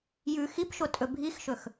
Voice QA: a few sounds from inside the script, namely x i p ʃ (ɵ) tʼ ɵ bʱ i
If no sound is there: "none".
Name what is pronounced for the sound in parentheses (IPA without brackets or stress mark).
o